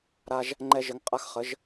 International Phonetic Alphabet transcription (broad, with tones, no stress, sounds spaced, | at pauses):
ɾ a˧ ʒ | ŋ͡ǃ ɛ˧ ʒ ə˨˦ ŋ qʼ a˧ x χ ə˨˦ ʒ